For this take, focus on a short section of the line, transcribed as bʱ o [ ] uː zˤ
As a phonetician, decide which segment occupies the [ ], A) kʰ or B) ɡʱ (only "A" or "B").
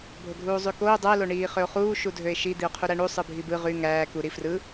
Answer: B